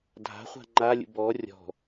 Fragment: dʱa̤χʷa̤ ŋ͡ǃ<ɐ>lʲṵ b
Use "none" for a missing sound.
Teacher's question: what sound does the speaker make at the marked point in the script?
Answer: a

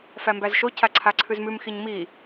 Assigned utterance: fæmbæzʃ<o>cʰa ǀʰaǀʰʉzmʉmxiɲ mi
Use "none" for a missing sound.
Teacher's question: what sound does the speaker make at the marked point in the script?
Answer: o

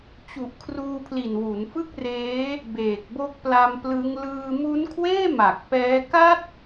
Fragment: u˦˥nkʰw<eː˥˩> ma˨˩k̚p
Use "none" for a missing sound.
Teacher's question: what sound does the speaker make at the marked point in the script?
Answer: eː˥˩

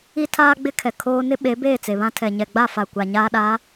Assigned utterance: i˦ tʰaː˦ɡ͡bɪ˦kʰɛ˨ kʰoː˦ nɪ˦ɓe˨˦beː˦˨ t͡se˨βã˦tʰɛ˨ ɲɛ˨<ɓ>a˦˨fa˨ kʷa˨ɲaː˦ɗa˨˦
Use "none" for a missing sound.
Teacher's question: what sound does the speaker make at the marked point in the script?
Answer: ɡ͡b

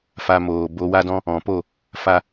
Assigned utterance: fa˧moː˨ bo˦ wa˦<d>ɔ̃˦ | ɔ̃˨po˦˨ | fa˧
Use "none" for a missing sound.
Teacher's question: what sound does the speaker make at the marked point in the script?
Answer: d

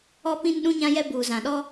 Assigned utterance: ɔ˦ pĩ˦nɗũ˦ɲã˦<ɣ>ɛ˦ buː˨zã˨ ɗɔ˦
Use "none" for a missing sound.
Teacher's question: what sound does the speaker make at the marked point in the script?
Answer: j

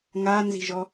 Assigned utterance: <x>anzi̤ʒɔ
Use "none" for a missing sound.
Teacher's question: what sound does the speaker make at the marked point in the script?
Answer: ŋ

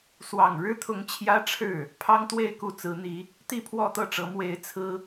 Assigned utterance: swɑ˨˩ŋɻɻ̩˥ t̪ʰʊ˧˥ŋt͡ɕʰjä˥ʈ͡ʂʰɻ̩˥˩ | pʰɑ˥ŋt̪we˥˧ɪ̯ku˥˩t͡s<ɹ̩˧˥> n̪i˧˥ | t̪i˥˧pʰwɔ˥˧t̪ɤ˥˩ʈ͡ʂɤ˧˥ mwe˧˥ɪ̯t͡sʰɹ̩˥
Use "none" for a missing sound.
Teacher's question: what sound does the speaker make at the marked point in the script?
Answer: ɹ̩˧˥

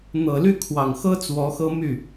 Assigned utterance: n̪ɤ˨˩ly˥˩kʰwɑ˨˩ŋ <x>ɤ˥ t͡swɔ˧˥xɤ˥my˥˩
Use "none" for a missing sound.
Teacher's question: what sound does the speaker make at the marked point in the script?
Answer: x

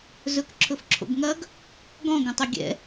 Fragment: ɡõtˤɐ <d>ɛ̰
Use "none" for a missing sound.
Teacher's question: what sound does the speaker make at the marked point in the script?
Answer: ɡʲ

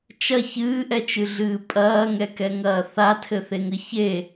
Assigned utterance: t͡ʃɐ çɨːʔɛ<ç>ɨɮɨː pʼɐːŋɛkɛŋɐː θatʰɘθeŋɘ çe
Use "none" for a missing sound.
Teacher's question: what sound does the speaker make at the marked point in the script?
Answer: t͡ʃ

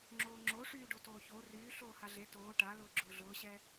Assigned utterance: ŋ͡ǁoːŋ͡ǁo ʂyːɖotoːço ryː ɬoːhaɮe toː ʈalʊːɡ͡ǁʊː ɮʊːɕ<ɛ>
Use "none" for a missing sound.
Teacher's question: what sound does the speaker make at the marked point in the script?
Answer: ɛ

